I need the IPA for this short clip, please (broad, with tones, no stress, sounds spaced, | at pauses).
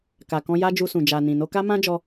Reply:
k a˨ k ɔ̃˧ j a˦ d͡ʒ u˧ s ũ˨ d͡ʒ a˨ n ĩ˨ n o˧ k a˦ m ã˦ d͡ʒ ɔ˧